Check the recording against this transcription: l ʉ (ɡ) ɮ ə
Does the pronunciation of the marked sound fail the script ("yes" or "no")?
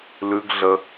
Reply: no